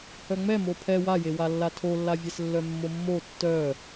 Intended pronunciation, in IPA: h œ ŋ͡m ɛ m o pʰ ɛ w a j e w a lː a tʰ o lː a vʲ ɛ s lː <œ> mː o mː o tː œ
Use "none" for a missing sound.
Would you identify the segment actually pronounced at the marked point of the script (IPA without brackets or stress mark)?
œ